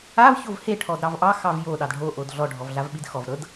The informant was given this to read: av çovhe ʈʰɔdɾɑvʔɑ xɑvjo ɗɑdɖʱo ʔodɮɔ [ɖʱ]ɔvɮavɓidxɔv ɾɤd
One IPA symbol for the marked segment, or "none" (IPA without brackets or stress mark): ɖʱ